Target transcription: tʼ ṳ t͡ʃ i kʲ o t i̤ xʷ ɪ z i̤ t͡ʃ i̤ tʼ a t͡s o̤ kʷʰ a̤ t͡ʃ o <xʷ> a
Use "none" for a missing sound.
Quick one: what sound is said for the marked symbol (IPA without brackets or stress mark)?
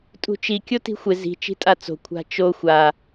xʷ